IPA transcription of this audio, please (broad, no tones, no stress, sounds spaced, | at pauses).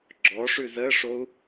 ɡ͡ǁ ɔ ʂ ʉ z ə ʂ o u̯